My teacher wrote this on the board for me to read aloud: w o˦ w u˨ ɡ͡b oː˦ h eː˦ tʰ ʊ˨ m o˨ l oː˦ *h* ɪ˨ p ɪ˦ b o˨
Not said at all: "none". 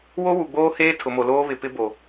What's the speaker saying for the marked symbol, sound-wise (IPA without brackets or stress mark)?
β